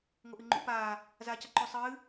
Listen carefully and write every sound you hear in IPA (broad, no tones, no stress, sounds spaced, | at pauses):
ŋ o ʔ ɨ ŋ͡ǃ ṵ p aː | z aː c a ǃ ʉ sˤ ɨː